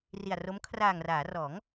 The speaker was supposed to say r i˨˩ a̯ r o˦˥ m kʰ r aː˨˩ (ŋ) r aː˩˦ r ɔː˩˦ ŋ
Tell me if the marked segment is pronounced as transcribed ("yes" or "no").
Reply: yes